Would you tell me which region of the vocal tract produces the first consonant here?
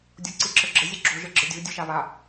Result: tongue tip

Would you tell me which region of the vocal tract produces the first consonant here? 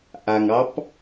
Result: throat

